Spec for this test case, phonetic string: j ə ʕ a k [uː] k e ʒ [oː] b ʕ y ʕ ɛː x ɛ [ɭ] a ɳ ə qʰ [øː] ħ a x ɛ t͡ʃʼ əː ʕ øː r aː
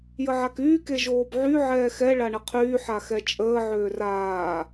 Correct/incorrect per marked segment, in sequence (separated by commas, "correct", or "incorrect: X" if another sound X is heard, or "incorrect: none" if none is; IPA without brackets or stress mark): incorrect: yː, correct, correct, incorrect: yː